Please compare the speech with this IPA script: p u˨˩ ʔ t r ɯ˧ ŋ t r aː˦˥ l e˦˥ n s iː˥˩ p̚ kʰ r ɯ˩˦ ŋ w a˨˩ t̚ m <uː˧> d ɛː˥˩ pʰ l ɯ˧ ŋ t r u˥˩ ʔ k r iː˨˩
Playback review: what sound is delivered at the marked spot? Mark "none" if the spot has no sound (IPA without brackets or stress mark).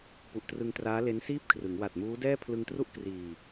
uː˦˥